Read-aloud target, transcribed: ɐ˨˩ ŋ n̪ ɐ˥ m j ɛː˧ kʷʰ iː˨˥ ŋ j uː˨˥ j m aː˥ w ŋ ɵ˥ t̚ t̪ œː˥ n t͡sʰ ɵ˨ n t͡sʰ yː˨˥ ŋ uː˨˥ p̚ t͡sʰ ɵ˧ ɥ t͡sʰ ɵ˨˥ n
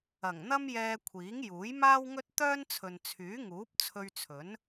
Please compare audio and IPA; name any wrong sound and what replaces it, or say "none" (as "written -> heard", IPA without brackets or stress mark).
none